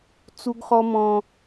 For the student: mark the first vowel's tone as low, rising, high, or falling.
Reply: high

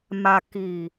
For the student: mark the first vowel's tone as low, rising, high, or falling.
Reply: low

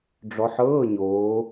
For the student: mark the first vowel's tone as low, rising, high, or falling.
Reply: rising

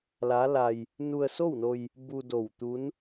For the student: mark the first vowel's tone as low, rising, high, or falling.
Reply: rising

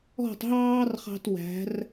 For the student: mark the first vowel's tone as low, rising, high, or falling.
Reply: falling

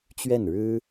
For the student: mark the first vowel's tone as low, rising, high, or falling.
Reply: falling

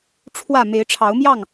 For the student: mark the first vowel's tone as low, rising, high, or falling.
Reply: falling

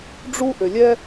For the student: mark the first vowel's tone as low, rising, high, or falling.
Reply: high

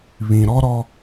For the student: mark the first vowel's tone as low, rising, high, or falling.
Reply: low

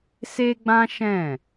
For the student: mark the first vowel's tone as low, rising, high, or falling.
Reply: high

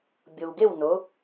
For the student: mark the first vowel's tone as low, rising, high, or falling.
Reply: low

